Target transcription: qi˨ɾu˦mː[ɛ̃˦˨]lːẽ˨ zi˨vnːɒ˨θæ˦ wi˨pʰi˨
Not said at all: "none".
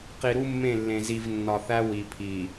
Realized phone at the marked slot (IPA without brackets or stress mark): ẽ˦˨